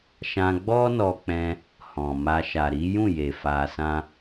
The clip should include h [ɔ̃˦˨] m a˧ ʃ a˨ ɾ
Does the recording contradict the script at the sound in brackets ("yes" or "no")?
yes